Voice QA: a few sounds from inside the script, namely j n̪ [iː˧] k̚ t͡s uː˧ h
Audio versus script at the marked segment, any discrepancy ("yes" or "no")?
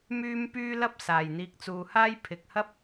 no